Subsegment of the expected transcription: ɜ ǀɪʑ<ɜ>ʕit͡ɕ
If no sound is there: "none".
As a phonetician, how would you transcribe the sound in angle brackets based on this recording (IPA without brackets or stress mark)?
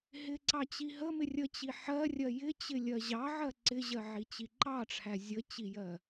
ɜ